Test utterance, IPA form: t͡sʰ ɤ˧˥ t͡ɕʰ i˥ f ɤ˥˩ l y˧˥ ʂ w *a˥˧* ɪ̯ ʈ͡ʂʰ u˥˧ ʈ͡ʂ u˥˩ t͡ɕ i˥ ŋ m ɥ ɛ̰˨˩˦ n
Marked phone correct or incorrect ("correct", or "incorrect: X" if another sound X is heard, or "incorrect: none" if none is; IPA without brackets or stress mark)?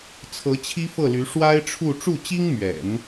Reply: incorrect: a˥